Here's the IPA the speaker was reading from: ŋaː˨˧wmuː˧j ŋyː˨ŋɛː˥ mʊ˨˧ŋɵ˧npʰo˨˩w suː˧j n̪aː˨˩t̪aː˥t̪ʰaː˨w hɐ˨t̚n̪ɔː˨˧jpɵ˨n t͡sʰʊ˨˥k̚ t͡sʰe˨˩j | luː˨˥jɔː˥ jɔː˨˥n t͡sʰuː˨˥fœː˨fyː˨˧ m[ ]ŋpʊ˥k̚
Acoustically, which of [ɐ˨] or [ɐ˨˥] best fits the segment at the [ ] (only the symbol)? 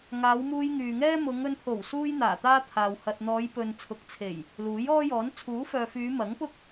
ɐ˨˥